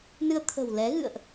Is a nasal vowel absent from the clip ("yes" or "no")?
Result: yes